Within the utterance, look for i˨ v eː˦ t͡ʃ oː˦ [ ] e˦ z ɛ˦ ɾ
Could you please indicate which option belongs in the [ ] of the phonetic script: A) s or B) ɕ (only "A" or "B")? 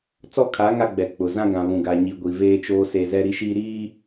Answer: A